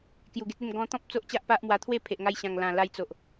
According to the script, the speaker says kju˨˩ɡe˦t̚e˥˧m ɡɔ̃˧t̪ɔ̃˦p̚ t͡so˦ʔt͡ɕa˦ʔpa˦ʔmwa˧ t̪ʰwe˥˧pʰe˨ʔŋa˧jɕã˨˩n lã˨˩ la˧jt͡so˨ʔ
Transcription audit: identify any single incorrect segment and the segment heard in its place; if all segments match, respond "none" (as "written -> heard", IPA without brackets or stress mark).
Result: n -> ŋ